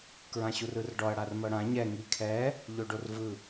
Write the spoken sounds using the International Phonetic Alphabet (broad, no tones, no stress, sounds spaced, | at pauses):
k ɹ ã ɕ u r ɯ r ɖ ɔ ɐ̯ ɽ a r m ɤ ɽ ã ɲ ɛ ŋ i kʰ ɛ | ʎ o ɖ o r v ɯ